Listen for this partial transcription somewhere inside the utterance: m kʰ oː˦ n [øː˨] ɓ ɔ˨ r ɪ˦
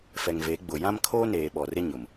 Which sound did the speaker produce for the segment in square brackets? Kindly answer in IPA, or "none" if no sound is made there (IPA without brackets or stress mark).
eː˨